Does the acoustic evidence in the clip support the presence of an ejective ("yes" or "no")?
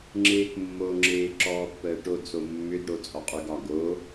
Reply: yes